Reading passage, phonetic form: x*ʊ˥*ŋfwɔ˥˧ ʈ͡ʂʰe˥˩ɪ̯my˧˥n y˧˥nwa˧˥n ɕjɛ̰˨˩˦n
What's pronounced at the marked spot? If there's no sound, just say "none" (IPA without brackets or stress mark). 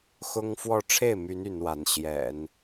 ʊ˥